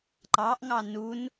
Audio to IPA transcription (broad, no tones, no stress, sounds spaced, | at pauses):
ǃ ɑ ʔ ŋ ɑ n u n